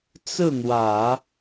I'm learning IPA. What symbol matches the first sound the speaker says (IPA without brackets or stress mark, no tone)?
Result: t͡s